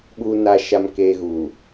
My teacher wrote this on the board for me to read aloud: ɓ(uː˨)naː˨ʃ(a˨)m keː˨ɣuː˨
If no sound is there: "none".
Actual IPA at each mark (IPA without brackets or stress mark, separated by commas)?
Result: uː˨, a˨